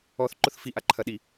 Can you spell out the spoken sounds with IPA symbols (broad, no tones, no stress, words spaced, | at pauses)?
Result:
ɔθ ǃʊθfi ʔaǃʰɐɗi